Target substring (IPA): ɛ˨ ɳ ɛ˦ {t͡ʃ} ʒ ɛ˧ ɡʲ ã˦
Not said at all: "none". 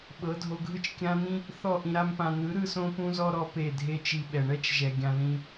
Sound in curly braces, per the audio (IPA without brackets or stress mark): t͡ʃ